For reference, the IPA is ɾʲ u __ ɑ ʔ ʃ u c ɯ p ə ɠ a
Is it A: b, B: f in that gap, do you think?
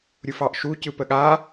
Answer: B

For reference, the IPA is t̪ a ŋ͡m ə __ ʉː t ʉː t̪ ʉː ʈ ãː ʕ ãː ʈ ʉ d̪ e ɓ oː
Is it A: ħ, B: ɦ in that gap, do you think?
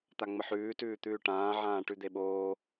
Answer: A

